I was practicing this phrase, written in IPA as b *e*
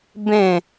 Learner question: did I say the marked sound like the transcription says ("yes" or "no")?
no